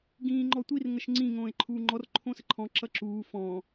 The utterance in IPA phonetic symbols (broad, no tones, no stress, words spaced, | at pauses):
ɡĩːŋ͡ǃɔtʷir ŋəʃŋ͡ǀĩ ŋõːe̯ǃʰuːŋ͡ǃɔr ǃʰõsəǃʰɔ̃ ǁʌǁuː fɔ̃